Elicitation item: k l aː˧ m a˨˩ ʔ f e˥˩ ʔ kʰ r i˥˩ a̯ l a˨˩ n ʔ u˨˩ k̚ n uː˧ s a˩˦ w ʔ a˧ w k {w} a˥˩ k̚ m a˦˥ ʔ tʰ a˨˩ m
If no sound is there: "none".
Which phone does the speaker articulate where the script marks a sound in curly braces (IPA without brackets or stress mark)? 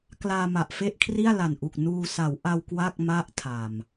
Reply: w